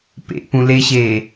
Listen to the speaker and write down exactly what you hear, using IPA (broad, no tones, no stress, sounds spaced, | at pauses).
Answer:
p ḛ p ũ l e ɕ e